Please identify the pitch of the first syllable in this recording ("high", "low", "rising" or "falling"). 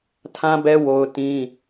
high